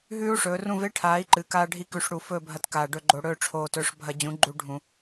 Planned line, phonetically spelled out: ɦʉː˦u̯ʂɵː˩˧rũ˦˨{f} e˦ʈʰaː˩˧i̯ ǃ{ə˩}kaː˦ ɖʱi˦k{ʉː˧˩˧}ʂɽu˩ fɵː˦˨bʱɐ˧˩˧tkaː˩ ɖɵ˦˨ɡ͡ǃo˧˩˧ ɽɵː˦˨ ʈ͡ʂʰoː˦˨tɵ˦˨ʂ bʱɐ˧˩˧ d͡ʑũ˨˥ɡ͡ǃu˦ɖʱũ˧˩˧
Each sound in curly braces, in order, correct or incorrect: incorrect: v, incorrect: ɨ˩, incorrect: ʉ˧˩˧

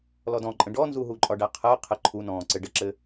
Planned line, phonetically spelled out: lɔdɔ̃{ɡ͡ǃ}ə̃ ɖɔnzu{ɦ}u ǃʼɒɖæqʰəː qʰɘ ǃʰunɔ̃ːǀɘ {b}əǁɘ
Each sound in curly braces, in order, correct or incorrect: incorrect: ǃʼ, correct, incorrect: ɖ

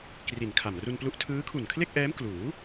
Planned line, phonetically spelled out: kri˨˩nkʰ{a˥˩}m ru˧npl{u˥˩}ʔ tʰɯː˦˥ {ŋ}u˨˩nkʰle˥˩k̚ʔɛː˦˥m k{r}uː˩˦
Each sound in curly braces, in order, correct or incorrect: incorrect: a˨˩, incorrect: u˦˥, incorrect: kʰ, incorrect: l

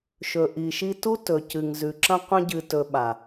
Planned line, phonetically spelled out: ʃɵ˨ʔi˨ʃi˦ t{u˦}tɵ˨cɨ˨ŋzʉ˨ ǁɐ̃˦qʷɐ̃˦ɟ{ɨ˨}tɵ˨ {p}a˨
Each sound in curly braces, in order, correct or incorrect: correct, correct, incorrect: ɓ

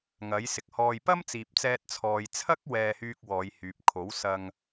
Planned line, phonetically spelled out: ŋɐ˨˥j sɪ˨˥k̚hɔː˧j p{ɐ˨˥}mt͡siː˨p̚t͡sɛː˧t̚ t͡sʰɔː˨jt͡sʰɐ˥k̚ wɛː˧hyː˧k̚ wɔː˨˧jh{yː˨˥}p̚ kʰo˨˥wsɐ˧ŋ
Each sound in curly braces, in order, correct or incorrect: incorrect: ɐ˥, incorrect: yː˨

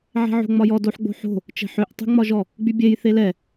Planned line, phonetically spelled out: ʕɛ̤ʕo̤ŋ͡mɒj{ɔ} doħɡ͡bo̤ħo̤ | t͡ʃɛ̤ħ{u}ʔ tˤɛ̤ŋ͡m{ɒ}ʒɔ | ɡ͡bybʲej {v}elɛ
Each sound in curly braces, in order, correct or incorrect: correct, incorrect: ø, correct, incorrect: θ

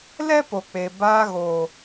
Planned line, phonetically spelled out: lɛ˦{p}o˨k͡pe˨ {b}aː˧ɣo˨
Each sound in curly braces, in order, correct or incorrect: correct, correct

